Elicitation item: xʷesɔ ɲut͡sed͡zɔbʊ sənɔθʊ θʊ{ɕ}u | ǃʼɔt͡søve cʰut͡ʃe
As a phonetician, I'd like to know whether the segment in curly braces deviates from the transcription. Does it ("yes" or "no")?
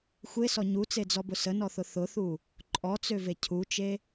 yes